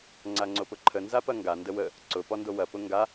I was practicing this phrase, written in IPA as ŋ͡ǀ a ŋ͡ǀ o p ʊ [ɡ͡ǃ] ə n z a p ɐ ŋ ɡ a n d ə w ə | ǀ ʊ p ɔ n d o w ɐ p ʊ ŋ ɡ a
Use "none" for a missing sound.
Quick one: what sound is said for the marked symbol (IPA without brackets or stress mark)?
ǃʰ